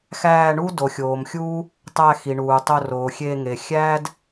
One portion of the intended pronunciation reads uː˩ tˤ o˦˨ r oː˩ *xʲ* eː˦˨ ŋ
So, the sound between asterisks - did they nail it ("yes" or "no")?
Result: yes